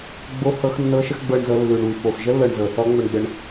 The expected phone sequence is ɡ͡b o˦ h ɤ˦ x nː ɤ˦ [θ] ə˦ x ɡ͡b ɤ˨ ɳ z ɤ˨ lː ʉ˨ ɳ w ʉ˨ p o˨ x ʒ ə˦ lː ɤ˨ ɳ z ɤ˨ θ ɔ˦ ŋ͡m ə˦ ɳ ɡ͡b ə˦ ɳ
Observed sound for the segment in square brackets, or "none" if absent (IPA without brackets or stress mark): ʃ